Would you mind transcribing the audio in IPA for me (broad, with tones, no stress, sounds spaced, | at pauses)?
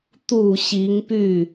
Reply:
t̪ u˨˩ ɕ i˧˥ ŋ p y˥˩